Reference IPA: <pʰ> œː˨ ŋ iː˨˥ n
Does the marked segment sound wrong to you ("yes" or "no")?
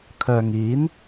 yes